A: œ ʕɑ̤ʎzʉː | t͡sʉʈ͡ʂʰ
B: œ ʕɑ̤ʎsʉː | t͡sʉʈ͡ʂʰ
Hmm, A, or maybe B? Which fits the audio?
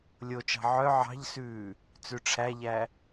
B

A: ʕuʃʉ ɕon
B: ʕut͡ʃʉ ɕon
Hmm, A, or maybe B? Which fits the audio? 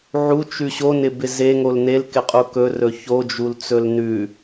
B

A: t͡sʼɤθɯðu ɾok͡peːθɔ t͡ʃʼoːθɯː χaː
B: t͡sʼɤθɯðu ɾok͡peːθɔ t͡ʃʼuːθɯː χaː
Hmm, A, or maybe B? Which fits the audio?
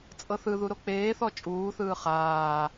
B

